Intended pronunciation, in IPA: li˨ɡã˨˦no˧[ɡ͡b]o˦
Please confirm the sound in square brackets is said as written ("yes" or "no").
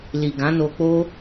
no